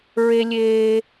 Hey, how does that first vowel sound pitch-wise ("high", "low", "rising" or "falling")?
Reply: high